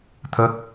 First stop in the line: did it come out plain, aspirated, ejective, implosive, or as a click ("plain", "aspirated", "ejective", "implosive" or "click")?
aspirated